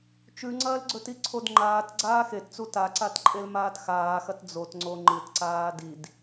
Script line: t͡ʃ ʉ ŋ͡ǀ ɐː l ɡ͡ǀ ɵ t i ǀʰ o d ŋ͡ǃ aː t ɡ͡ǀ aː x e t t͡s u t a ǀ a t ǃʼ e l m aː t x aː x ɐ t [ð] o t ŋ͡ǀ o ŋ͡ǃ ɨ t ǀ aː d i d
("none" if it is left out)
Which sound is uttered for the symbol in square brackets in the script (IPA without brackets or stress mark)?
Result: d͡z